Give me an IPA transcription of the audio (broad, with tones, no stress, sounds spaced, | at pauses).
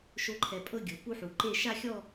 ʃ o˦˥ ǃʰ ɛ˧ pʼ ɤ˥˧ ɡʲ ɤ˩˧ p u˦˥ ħ u˩˧ ǃ e˥˧ ʃ a˥˧ xʲ ɔ˥˧